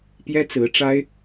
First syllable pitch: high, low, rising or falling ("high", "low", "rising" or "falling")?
high